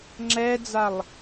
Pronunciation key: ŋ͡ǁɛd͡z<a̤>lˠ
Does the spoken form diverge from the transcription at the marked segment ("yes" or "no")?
yes